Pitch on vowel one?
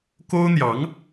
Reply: high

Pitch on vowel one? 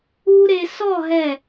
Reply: high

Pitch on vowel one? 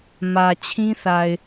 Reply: low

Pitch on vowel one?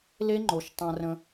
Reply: high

